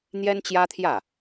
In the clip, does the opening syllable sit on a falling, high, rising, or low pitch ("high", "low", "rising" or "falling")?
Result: high